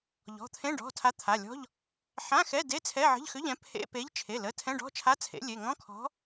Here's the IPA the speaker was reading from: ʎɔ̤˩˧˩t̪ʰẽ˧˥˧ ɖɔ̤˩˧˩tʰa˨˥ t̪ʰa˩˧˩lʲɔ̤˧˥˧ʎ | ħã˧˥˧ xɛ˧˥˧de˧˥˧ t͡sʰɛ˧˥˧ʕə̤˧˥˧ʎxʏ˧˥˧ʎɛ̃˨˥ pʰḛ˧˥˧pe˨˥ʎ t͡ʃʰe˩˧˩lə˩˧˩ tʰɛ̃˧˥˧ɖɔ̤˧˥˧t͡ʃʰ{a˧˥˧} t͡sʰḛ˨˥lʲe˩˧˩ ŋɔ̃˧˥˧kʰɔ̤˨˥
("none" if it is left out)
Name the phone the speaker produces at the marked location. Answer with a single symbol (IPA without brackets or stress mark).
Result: a˧˥˧